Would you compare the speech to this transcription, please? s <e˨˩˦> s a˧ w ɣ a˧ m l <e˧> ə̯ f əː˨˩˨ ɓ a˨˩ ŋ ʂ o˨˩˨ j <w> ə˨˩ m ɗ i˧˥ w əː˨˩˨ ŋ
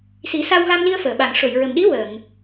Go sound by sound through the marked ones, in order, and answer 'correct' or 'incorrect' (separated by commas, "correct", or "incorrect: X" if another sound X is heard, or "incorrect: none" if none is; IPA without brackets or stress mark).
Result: incorrect: i˨˩˦, incorrect: i˧, incorrect: ɹ